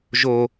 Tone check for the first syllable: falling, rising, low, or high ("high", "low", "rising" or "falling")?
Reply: low